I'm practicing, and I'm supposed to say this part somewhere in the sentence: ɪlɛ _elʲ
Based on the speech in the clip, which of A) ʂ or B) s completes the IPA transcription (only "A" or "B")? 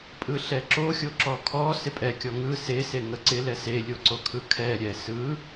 B